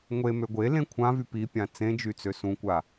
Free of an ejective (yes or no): yes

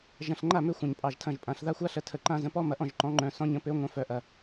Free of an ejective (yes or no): no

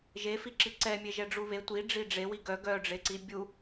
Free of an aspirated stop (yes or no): yes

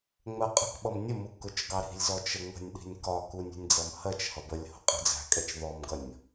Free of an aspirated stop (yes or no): yes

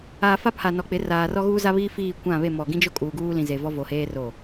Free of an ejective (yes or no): no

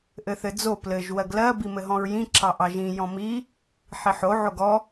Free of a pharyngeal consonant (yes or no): no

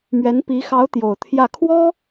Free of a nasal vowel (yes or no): yes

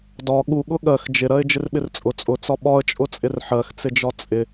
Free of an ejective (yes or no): no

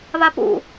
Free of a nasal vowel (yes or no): yes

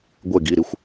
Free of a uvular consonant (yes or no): yes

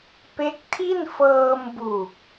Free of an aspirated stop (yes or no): no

